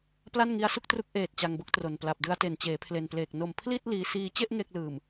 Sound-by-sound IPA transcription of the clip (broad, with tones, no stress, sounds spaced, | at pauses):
p l a˥˩ n ŋ i˦˥ a̯ s u˥˩ k̚ t r u˦˥ k̚ ʔ eː˨˩ t̚ t͡ɕ a˧ ŋ b o˥˩ k̚ t r o˨˩ n p l a˨˩ p̚ d ɯ˧ a̯ t e˨˩ n t͡ɕ eː˩˦ pʰ l e˨˩ n p l eː˨˩ k̚ n o˨˩ m pʰ l i˥˩ t̚ l iː˧ s iː˧ t͡ɕ e˥˩ ʔ ŋ e˥˩ k̚ l ɯː˨˩ m